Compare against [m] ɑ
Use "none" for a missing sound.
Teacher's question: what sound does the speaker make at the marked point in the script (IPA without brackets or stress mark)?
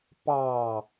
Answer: p